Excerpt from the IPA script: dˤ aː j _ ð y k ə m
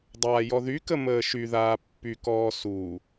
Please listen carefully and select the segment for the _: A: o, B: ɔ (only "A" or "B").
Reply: B